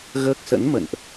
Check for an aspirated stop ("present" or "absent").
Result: absent